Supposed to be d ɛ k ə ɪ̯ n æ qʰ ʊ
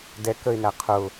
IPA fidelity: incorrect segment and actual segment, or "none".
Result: none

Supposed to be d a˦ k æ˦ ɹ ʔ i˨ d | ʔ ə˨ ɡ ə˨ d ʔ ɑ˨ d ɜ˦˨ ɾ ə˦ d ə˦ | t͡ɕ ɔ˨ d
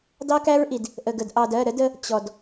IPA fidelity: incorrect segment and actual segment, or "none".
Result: a˦ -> ɑ˦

